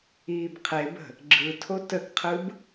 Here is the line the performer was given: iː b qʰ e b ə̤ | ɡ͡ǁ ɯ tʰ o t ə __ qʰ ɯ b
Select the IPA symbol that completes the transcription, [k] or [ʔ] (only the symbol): k